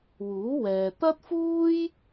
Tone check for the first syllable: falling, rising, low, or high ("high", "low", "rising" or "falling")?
rising